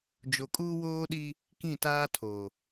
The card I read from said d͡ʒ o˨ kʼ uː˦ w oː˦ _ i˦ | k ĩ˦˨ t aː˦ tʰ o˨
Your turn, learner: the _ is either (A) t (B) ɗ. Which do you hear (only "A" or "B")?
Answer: B